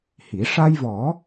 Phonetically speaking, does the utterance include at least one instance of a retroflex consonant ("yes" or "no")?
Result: yes